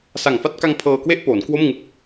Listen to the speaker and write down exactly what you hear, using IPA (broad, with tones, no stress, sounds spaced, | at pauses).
s a˨˩ ŋ f a˥˩ t̚ k a˧ ŋ pʰ ɤː˧ k w e˥˩ ʔ p oː˩˦ n k w o˥˩ m ŋ ɯ˦˥ k̚